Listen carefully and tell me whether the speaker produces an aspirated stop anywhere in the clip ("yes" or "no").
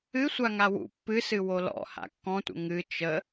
no